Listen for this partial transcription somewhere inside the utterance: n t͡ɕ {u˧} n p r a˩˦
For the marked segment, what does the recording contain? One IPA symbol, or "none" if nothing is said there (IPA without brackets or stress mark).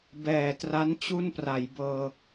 u˥˩